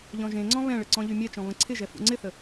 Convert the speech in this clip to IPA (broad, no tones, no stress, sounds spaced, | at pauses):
ʎ ɔ̃ ʒ ẽ ŋ͡ǀ ɔ̃ β ɛ̃ ɭ ə ǀ ɔ̃ ʎ y mʲ ɛ t͡ʃ ɔ̃ β ə̃ ǀʰ ɪ ʒ ɛ f ṵ ŋ͡ǀ ɪ θ ə